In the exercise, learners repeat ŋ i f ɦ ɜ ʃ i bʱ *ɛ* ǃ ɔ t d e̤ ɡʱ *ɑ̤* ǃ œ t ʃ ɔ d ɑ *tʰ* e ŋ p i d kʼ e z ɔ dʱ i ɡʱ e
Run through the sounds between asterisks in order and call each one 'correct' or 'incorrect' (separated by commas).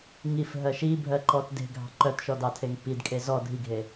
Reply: incorrect, correct, correct